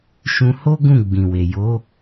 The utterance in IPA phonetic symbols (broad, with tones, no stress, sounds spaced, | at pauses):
ʃ ũ˧ h o˦ ɡ ũ˦˨ ɡ͡b ĩ˨ w e˨ j o˨˦